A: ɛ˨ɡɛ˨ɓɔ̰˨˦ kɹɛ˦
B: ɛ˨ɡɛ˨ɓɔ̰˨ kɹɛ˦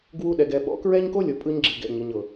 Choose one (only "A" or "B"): A